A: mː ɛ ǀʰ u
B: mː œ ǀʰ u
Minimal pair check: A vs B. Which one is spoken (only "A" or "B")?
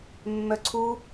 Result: B